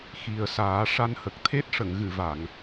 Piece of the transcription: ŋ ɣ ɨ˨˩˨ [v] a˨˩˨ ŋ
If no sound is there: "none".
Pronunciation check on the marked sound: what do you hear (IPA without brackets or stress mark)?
v